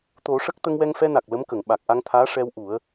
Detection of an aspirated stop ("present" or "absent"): present